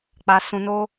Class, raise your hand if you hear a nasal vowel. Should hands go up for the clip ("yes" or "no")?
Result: yes